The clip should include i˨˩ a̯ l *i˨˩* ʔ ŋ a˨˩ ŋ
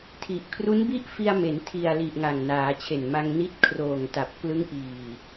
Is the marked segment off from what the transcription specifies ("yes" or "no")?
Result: no